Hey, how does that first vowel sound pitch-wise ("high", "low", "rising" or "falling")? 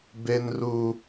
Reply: high